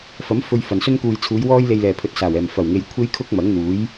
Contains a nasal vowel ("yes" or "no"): no